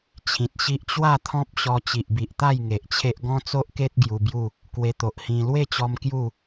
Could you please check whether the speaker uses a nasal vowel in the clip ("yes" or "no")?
yes